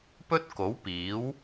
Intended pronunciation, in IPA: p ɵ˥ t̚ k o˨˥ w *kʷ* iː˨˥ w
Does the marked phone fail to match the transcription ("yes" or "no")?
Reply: yes